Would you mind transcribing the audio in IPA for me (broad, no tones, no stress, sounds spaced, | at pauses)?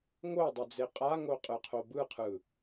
ŋ o dˤ u d͡z e qʼ a ŋ o qʼ ɯ qʰ o b ɯ qʰ ɯ